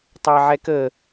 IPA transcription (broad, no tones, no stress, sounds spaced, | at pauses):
tˤ ɑ ʕ ɛ k ə